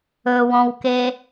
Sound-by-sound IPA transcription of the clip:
ɵwɔ̃wke

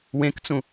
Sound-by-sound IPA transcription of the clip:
wẽkt͡sũ

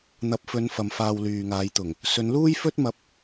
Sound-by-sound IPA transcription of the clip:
n̪ɐ˨p̚fɵ˨˧n fɐ˨mfaː˧wlyː˨ŋaː˨˧j t̪ʊ˨˩ŋ | sɵ˨˧nluː˥jfɵ˥t̚mɐ˧p̚

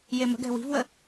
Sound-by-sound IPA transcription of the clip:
jemə̤ɡɛ̤ wi̤vwə

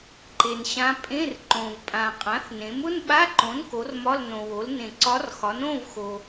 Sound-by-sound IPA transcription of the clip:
ǃe˩nɕã˧˥ pʼẽ˧˥˧rǃõ˩vpʼã˩ qʼã˩˥θnẽ˩˥m ʊ˧˥˧nɓa˧˥˧ǃõ˩˥n ko˩˥rmɒ˧˥˧l nõ˩wo˩˥l nẽ˩ǀɒ˧˥rxɒ˩˥nõ˧˥˧v xo˩

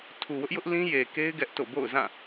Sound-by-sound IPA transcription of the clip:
tʰu˨wʊ˦ʔjʊ˦ʔlĩ˦ je˨ke˦ɪ̯ ɡɛ˦ʔto̰˦˨ bo̰˦˨ʊ̯zã˦˨

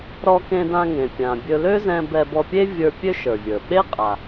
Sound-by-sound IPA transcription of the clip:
ɾɔ˧kẽ˧dã˧ŋẽ˩ pʲã˩bʲɵ˧ lø˥zɛ̃˧ bɛ˧bɔ˧pʲe˥ vʲə˞˧ pʲø˥ʃə˞˩vʲə˞˩ ɓe˥qʼa˩

